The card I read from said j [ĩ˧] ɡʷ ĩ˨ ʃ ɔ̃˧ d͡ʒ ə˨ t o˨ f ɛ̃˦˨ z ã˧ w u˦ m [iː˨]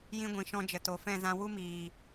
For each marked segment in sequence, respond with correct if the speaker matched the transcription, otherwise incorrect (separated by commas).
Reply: correct, correct